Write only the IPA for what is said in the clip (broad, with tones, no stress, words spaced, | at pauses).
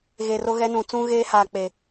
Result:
ɣe˨ro˦ɣɛ˦nũ˨ t͡sũ˦ɣeː˦haː˨ k͡pe˨